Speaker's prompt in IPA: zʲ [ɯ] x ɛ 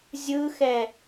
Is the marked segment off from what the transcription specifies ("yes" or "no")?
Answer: no